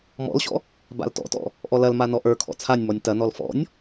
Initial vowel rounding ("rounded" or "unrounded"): rounded